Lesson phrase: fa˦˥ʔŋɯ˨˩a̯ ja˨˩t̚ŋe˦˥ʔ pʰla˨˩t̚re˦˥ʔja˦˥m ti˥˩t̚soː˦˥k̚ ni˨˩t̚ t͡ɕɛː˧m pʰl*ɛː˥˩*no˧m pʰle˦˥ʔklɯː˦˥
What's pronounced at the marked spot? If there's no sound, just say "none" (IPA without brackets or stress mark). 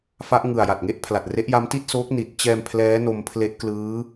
ɛː˦˥